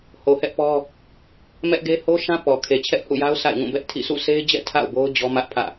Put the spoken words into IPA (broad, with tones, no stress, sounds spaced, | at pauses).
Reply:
h o˨ h ɛ˦ ʔ p ɔ˦ | m ɛ˦ ʔ ɡ e˦ h o˦ ʃ ã˦ p ɔ˨ kʰ e˨ t͡ɕʰ ɛ˦ ʔ h ṵ˦˨ j a˦ ʊ̯ sʰ a̰˦˨ ɪ̯ ŋ ũ˦˨ b ɛ˦ ʔ tʰ ḭ˦˨ s ṵ˦˨ sʰ e˦ ɪ̯ d͡ʑ ɛ̰˦˨ tʰ a̰˦˨ ʊ̯ b o˦ ʊ̯ d͡ʑ ɔ˦ m ä˦ ʔ pʰ ä̰˦˨